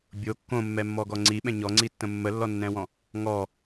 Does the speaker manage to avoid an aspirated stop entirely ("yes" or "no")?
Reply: yes